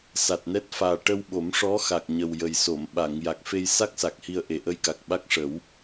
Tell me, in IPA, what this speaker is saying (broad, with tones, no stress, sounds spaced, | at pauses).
s a˨˩ t̚ n ɛ˦˥ t̚ f aː˨˩ ʈ ə˧ w ɓ o˨˩˦ m ʂ ɔ˧˥ x a˨˩ k̚ ɲ ə˨˩ w j ə˨˩ j s o˨˩˨ m ɓ a˨˩˨ ŋ j a˨˩ k̚ f e˧ j s a˦˥ k̚ s a˨˩ k̚ h i˧ ə̯ ʔ e˨˩ ʔ ə˧ j k a˨˩ k̚ ɓ a˦˥ k̚ ʂ ə˨˩˦ w